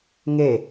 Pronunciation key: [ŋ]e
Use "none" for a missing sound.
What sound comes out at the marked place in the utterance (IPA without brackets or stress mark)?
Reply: ŋ